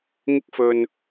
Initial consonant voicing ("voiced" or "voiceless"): voiced